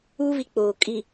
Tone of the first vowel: high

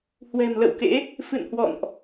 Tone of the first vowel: low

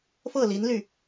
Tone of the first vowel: falling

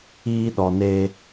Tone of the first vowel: high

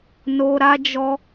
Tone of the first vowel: high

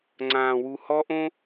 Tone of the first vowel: low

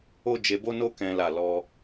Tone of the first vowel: high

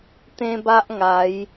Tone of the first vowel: high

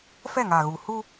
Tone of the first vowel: falling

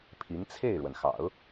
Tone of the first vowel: rising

